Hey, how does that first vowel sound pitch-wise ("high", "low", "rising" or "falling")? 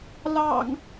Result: low